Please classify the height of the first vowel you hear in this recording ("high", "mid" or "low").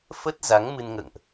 mid